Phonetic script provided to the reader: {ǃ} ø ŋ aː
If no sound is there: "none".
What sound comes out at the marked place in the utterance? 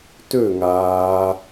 t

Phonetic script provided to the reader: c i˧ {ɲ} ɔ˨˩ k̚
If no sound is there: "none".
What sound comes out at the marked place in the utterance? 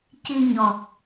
ɲ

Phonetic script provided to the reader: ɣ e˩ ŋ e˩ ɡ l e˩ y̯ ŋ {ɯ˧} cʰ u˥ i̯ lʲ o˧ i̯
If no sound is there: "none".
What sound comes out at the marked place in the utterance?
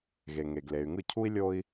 ɯ˥˩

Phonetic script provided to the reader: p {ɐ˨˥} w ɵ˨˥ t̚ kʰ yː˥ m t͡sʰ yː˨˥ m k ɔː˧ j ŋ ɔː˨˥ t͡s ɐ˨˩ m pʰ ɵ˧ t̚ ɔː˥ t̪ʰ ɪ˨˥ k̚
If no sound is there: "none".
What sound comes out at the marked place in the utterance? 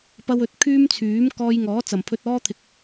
ɐ˧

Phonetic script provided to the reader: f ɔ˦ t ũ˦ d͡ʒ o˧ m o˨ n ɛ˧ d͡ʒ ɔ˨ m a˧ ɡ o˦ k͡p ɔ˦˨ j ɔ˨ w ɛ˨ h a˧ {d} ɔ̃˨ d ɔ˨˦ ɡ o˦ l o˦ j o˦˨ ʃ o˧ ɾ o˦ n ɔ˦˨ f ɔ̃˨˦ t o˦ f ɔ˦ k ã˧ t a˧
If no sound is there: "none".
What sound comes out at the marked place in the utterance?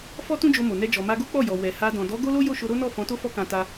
d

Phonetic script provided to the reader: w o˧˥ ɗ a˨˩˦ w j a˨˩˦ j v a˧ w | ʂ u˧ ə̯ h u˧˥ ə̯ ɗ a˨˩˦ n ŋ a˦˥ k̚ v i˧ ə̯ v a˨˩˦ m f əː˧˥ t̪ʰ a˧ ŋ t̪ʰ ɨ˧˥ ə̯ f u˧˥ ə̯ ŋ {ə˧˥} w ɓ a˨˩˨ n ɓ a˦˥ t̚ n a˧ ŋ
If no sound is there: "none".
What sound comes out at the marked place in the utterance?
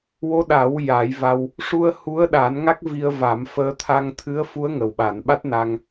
ə˨˩˨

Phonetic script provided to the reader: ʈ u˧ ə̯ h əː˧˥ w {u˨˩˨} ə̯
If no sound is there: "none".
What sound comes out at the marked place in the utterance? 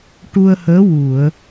u˨˩˨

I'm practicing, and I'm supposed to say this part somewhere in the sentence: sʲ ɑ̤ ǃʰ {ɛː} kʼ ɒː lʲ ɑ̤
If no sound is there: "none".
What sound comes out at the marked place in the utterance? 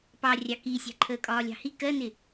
əː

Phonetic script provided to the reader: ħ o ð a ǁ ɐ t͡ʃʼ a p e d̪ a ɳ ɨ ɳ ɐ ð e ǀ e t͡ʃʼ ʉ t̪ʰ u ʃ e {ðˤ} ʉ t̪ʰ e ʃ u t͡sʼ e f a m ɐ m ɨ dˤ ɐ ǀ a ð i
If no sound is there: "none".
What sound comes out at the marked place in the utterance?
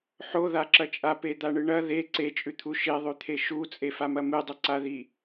ðˤ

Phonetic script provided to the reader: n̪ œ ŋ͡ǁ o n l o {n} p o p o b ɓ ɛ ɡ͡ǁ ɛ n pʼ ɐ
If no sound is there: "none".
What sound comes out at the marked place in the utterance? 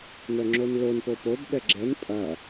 n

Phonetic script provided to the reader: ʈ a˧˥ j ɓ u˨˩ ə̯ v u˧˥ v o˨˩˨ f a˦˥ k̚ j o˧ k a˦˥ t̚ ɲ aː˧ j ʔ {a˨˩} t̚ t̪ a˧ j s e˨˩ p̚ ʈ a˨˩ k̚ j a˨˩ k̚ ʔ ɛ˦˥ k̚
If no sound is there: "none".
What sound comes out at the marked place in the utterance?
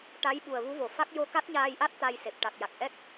a˦˥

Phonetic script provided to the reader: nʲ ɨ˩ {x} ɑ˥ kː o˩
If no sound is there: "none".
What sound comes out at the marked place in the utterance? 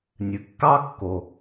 kː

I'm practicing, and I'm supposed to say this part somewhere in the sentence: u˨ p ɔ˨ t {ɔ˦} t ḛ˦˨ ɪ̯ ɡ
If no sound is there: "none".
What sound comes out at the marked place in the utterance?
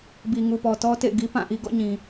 ɔ˦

